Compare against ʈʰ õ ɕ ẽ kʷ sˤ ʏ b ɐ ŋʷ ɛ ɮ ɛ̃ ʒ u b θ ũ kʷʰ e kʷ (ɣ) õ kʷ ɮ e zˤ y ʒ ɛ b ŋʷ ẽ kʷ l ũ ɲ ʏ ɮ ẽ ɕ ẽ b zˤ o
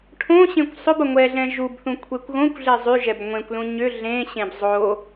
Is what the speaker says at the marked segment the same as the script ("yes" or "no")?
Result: yes